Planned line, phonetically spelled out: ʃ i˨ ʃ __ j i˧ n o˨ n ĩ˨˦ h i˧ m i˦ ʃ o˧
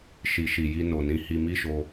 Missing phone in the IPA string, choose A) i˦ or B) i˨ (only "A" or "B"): B